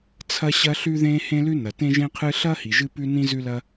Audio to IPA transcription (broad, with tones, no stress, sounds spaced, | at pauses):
t͡sʰ ɐ˥ ɕ ɐ˥ ɬ ʉ˥ ð ẽ˥ h ẽ˥ l ʉ˥ n ɐ˩ t ẽ˥ ʒ ẽ˥ qʰ ɨ˥ ɬ ɐ˥ h i˩ ʒ ɨ˥ p ʉ˥ n ĩ˥ z ʉ˥ l ɐ˥